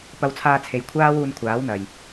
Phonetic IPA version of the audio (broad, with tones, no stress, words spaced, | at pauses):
pɐ˧wt͡sʰaː˧t͡sʰe˨jkʷʰaː˥ wuː˧nkʷʰaː˨˥wn̪ɐ˨j